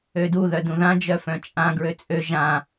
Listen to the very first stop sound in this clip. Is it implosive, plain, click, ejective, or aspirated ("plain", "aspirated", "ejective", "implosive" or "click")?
plain